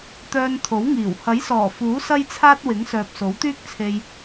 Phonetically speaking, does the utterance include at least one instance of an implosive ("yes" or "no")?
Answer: no